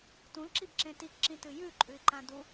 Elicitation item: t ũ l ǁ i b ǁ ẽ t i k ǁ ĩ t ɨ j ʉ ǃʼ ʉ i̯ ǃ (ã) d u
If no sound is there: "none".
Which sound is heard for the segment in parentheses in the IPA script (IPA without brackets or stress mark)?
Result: ã